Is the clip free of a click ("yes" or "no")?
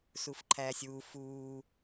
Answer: no